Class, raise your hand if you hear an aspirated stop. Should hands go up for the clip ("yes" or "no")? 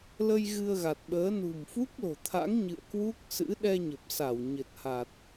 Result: yes